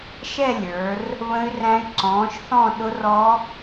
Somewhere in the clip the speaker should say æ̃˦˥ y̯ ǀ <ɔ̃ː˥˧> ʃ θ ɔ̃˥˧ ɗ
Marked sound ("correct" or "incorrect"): incorrect